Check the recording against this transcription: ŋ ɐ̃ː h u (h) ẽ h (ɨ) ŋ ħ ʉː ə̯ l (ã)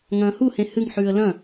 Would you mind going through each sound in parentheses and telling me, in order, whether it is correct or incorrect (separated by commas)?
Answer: correct, correct, incorrect